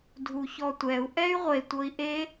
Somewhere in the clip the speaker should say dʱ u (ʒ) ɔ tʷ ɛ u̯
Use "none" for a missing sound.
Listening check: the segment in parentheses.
ç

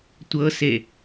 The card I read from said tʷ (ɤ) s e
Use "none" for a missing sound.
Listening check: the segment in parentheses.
ɤ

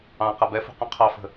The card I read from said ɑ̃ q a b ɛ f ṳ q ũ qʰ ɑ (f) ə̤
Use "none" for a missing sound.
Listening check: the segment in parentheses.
f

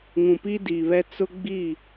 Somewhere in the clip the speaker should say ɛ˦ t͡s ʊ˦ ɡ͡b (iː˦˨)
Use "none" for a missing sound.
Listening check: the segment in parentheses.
iː˦˨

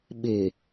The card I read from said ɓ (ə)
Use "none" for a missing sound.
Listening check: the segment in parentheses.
ɪ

